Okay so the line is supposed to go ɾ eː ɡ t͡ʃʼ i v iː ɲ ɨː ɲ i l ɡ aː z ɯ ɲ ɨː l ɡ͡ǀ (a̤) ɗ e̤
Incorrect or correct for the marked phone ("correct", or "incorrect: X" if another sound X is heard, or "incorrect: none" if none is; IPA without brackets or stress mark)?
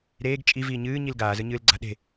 correct